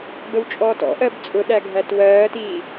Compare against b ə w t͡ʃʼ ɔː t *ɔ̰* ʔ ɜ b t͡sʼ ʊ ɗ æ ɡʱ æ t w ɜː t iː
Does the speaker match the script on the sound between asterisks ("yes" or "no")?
yes